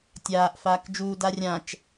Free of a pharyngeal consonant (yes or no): yes